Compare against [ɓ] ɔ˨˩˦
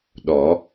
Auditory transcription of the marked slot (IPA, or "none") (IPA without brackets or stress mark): ɗ